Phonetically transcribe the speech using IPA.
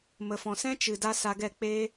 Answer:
m ə˨ f ɔ̃˨ s ɛ̃˦ t͡ʃ ɨ˨ d a˦ s a˧ ɡ ɛ˦˨ k͡p eː˦

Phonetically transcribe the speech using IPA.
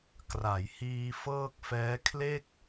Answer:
k r a˩˦ j h iː˧ f ɤː˥˩ k̚ f ɛː˦˥ kʰ l e˥˩ k̚

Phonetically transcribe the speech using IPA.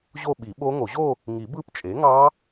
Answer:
ʑ o˥˧ ɓ i˨˩˦ ɓ o˦˥ ŋ o˨˩˦ ʑ o˥˧ | ŋ i˨˩˦ b ɯ˦˥ p t͡ʃʼ e˩˥ ŋ ɑ˦˥

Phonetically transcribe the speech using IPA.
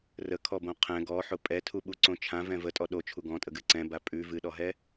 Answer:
r ə kʰ ɔ b õ qʰ ɛ̃ ɡ ɔ ħ ʊ pʼ ɛ tʰ u ɓ u ǀ õ t͡ʃʰ ã v ɛ̃ v ə tʼ ɔ ɗ o t͡ʃʰ u ɡ ɔ̃ tʼ ə ɡ ɨ ǀ ɛ̃ b a pʼ ʉ v ɨ ɗ ɔ ɦ ɛ

